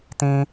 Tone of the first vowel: high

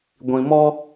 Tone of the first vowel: low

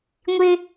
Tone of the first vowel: high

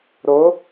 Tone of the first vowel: rising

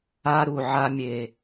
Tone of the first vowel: high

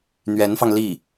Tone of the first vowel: rising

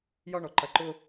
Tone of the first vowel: high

